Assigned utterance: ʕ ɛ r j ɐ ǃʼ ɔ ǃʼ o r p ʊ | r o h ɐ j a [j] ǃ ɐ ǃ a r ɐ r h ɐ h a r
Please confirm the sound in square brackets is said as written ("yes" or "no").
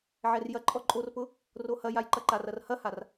yes